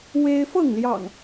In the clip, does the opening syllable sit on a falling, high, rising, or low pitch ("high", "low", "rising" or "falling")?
high